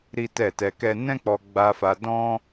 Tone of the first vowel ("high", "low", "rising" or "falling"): high